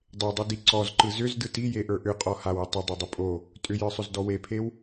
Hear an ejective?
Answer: yes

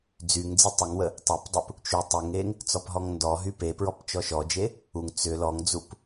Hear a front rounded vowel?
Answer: yes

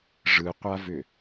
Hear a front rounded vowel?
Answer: yes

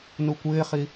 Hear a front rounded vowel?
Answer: no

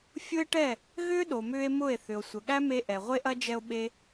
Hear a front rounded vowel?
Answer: yes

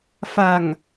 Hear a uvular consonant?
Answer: no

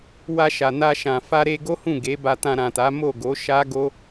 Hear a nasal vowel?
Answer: yes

